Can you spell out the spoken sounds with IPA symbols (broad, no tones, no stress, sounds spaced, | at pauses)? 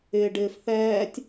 ɪː ɖ ɪː f θ ɛː tʲ